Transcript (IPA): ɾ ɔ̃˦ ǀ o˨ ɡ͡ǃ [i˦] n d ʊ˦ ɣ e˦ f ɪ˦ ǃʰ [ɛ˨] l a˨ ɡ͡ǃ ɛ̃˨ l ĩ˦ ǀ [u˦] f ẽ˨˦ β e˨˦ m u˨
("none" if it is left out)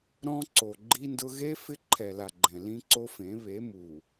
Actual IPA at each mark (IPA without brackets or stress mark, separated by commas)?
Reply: i˦, ɛ˨, o˦